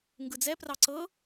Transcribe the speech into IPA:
ŋ ɡ ɯ d͡z ɛ p r ɑ ǀ ɤ

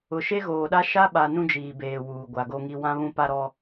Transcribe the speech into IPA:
ʊ˨ ʃ e˦ ɣ oː˨ ɗ a˦ ʃ a˦ ɓ a˨ n ũ˦ d͡ʒ iː˨ b eː˨ w uː˨ ɡʷ a˨ ɡ o˦ ŋ i˦ w ã˦ β ũ˦ p a˦ ɾ ɔ˦

